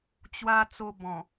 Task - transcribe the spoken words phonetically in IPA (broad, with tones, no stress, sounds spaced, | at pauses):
t͡ɕ w a˧ t͡s o˧ b ɔ̃˨˩